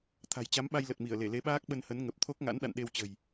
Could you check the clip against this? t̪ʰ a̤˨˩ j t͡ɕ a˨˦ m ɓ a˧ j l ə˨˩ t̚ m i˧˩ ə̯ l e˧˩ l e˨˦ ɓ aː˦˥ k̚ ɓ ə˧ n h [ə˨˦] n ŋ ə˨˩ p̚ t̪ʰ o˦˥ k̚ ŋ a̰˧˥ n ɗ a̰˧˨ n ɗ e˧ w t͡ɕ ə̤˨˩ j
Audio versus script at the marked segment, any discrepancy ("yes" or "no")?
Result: no